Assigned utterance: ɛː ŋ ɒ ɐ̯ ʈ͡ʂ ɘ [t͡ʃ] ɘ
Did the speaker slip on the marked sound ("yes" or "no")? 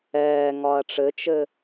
no